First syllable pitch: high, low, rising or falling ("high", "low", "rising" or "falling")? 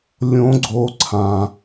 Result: rising